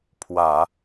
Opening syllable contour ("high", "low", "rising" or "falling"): low